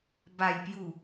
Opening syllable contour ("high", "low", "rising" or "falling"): low